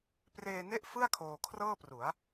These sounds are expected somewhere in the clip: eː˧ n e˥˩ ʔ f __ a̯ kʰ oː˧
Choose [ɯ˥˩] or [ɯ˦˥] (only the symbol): ɯ˥˩